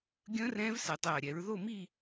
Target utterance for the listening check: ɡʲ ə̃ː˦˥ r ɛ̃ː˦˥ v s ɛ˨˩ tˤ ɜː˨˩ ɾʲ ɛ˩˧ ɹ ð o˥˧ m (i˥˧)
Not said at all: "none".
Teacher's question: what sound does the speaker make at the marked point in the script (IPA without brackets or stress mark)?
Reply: i˥˧